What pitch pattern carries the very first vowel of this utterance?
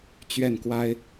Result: falling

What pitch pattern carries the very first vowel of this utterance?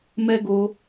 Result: high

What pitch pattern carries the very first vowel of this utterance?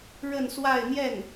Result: falling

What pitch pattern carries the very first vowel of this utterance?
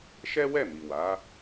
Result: high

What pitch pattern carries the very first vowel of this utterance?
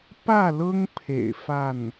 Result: falling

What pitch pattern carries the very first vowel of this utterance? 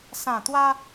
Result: low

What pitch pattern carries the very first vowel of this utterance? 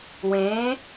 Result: rising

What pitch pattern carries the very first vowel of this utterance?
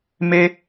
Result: high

